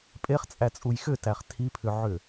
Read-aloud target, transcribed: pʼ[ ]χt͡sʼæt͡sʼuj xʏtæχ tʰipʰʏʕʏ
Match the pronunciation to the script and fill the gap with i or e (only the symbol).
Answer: e